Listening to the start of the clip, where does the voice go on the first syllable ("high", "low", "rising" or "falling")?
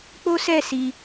high